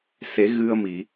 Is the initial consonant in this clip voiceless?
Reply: yes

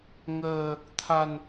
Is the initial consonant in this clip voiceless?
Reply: no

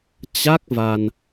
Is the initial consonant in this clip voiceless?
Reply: yes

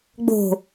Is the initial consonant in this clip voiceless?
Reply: no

